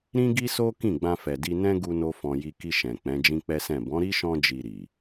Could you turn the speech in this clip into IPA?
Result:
ɾ ĩ˦ ɡ i˦ s o˦ k ĩ˦˨ ɡ͡b ã˧ f ɛ˨ d i˧ n ɛ̃˦ ɡ u˦ n o˦ f ɔ̃˧ j i˧ k i˧ ʃ ɛ̃˨ k͡p ɛ̃˨˦ d͡ʒ ĩ˦ k͡p ɛ˦ s ɛ̃˦˨ b ɔ̃˨˦ ɾ i˦ ʃ ɔ̃˧ d͡ʒ i˨ ɾ i˨

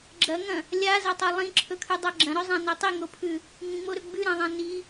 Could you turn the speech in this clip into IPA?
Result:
ɡ͡ǁ ɐ ŋ ɐ̃ | lʲ a z ɐ tˤ ɐ lˠ ĩ ǁʰ ɵ kʰ ʉ dˤ a ɡ͡ǁ ɐ̃ ɾ ɵ zˤ ã n o tˤ i ŋ o pʰ ʉ | ŋ ĩ ŋ͡m o ɾ ɵ ɡ͡b ʉ ɾ ã ðˤ ã n i

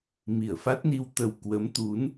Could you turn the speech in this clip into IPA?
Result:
m i˧˩ ə̯ f a˦˥ t̚ n i˧ w t̪ ə˨˩ w k w ə˨˦ m t̪ u˨˦ n

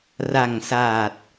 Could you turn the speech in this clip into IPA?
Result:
r a˨˩ ŋ s aː˨˩ t̚

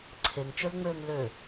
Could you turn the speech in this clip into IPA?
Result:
ǀʰ e ŋ t͡ʃ ø l ŋ͡m øː ŋ l ø

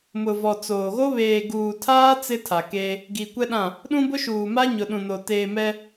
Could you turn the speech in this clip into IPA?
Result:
m ʊ˨ v ɔ˨ t͡s oː˨ ɣ o˦ β eː˨ ɡ uː˨ tʰ aː˦ t͡s ɪ˦ tʰ a˨ k eː˦ | ɡ i˨ kʷ ɛ˦ ɗ ã˦˨ | ɗ ũ˦ b ʊ˦ ʃ uː˨ m a˦ ɲ ʊ˨ ɗ ũ˨ n o˨ t eː˨ m ɛ˦

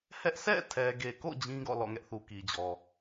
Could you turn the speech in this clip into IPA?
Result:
h ɛ˦ ʔ sʰ ɛ̰˦˨ tʰ ɛ˨ ɡ e˨ k o̰˦˨ d͡ʑ ĩ˦ ɡ ɔ̰˦˨ l ɔ̰˦˨ ŋ ɛ˦ ʔ θ u˨ k i˨ d͡ʑ ɔ˨

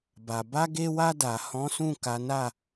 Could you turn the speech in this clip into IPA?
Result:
b a˨ b a˧ ɡ e˧ w a˧ d a˨ h ɔ̃˨˦ s ũ˦˨ k a˨˦ n a˦˨

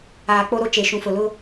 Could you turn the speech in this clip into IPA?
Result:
aː˨ k͡p o˦ ɾ o˦ t͡ʃ e˨ ʃ ũ˨ f ʊ˨ l ʊ˦

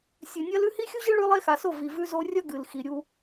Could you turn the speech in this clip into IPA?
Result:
sʲ ɨ˨ nʲ ɐ˦ l ʉ˦ h i˦ xʲ u˦ ʑ ɨ˦ ɭ ʉ˦ lˠ e˦ x a˨ s o˦˨ v i˨ v ʉ˦ z o˦ rʲ ɐ˦ ɡ ɨ˨ l x i˨ ɾʲ u˦

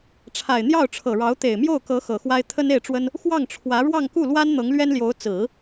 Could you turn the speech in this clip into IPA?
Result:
ʈ͡ʂʰ a˨˩ ɪ̯ n̪ j ɑ˥˩ ʊ̯ ʈ͡ʂʰ ɤ˨˩ ɻ ɑ˧˥ ʊ̯ t̪ e˨˩ ɪ̯ m j o˥˩ ʊ̯ k ɤ˧˥ x ɤ˨˩ x w a˥ ɪ̯ t̪ʰ ə˥ n e˥˩ ɪ̯ ʈ͡ʂ w ə˥ n | x w ɑ˥˩ ŋ ʈ͡ʂʰ w ä˧˥ ɻ w ɑ˥˧ ŋ k u˥˩ l w a˥ n n̪ ɤ˧˥ ŋ l ɥ ɛ˥ n l j o˧˥ ʊ̯ t͡s ɹ̩˨˩˦

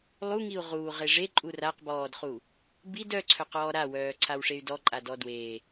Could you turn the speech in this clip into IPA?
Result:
lˠ u ŋ i u̯ ʁ uː ʁ e ʐ e ǃʼ u r a q b ɔː d χ u | b i d œ ǀʰ œ q ɔː ɾ a w œː ǀʰ a w ʂ e y̯ d ɔ ǃʼ a d ɔ d w e

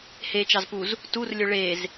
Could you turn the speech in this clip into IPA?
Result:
h e t͡ʃ ɑ z p u z | t u r lʲ ɵ ɭ e z

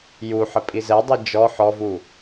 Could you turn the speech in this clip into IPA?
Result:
j u ħ ə pʼ i z ɛ dˤ i d͡ʒ ɔ ħ ɔ v u

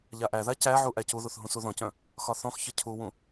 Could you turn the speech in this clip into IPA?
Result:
ʎ a ʔ æ ð a c æ ʕ u ʔ æ c u ð u θ ɦ ũ s u ð ɔ̃ c œ̃ | x ɒ θ ɔ̃ x ç ə cʰ u w ũ

